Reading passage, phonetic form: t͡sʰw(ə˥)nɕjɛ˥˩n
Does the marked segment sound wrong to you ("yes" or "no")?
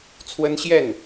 no